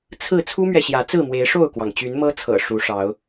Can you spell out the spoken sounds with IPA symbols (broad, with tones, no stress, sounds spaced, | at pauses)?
t͡sʰ ɹ̩˥˨ t͡sʰ u˦ m ɥ ɛ˨ ɕ j ä˨˦ t͡s ɹ̩˥˨ m w e˨˦ ɪ̯ ʂ o˥˨ ʊ̯ k w ɑ˩ ŋ t͡ɕ y˨˦ n m ɤ˦ t͡sʰ ɤ̰˨˩ ʂ u˨˦ ʂ ɑ˨˦ ʊ̯